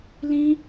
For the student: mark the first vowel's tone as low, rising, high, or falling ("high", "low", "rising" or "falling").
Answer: high